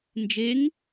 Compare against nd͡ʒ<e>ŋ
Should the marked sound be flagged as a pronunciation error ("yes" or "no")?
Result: no